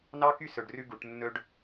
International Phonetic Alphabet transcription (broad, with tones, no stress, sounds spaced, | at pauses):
n ɑ˦ k y˦ s ɵ˨ ɖ r ʉ˧ ɡ u˨ ʈ nː ɵ˦ ɖ